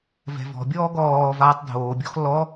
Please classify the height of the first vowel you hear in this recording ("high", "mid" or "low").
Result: mid